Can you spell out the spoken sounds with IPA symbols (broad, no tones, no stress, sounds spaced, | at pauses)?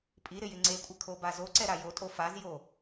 pʼ i ɾ ɪ j ɪ ŋ͡ǀ e kʷʼ ɪ kʰ o b a z o ǀ ɛ ɾ a j o tʼ o f a z j o